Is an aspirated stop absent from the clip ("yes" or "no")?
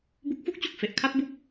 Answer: no